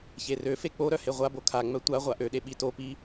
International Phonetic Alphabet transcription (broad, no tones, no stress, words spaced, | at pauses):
çerøfe k͡poɾœ heʁʷabo kʰaŋ͡mœ tʷa ʁʷaʔøɗe ɓitopi